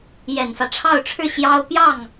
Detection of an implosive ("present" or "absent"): absent